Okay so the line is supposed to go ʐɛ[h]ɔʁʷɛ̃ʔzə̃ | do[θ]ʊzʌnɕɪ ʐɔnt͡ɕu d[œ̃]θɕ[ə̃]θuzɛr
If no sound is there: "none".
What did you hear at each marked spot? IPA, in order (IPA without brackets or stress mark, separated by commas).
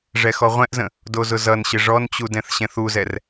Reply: x, z, ɛ̃, ɛ̃